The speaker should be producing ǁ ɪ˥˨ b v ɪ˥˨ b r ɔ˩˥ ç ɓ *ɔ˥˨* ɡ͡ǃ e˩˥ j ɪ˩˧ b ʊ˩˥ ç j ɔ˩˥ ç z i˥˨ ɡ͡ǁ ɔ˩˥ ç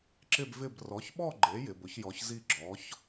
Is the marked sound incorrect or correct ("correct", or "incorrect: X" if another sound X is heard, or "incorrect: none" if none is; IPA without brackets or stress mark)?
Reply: correct